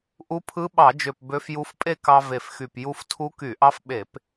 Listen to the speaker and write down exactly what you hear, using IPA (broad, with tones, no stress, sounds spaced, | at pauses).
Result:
ʔ u˧˥ pʰ ɯ˧˥ ɓ ɑ˧˩˧ d͡ʒ ø˨˩ p b ø˧˥ f j u˧˥ f pʼ e˥˧ k ɑ˧ v e˨˩ f x y˨˩ p j u˧ f tʰ u˧˥ k y˧˩˧ ʔ ɑ˧˥ f ɓ e˧˩˧ p